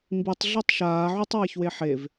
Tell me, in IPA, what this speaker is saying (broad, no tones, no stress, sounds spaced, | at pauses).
m b i tˤ ɮ i tˤ ʃ aː ʕ u tˤ w a ç w e ħ e v